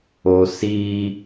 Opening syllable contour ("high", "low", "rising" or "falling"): low